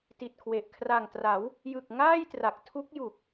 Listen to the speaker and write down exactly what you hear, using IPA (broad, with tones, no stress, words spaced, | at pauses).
ti˨˩t̚kʰwe˨˩ʔ kʰra˨˩ŋtra˩˦w | jɯ˨˩k̚ ŋaː˥˩jtra˨˩k̚ tʰu˦˥k̚ju˨˩k̚